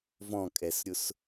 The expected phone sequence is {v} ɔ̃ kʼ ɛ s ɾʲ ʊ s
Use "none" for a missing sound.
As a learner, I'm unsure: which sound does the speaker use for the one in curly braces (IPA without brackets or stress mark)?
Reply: v